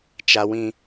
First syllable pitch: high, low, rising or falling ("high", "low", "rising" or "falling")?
high